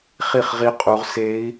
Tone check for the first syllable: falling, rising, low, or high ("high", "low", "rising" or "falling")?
falling